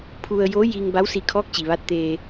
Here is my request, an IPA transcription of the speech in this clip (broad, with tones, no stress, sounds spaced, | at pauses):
pʰ u˧ ə̯ j o˧˥ j i˧ ŋ b a˧˥ w s i˧ kʰ ɔː˧˥ k̚ t͡ɕ i˩ ʋ a˧˥ t̚ t̪ eː˧